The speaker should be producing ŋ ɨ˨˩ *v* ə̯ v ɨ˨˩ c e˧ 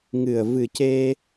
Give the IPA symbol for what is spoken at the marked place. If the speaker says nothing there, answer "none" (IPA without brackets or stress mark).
none